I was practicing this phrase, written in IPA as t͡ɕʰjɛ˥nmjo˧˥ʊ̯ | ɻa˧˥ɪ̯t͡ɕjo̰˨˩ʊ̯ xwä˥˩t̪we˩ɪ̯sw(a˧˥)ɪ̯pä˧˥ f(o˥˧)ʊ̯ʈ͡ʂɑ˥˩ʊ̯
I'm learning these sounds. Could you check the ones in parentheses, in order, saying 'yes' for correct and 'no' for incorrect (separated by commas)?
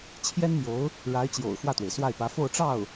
no, yes